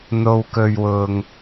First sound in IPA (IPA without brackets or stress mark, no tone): n̪